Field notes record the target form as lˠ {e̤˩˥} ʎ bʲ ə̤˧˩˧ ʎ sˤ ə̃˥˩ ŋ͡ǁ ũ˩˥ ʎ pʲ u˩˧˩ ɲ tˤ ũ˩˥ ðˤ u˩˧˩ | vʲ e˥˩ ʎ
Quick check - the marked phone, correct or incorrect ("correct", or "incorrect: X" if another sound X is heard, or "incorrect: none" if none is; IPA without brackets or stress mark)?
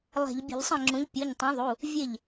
incorrect: e̤˧˩˧